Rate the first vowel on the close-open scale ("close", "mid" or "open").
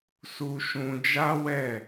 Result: close